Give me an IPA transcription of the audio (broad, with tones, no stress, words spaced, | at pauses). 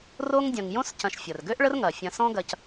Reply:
ro˦ŋdʲɐ̃˨ŋ jõ˥scɐ̃˨ʃ fʲɐ˩rɡø˥ʔ ɭə˥rŋɐ˩ fʲɐ̃˨sɔ̃˦ɡɐ˨c